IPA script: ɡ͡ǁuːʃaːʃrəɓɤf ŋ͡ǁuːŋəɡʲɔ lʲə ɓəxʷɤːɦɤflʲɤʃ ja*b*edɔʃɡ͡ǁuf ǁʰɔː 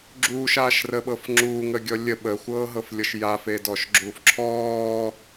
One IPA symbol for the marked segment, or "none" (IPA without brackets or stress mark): f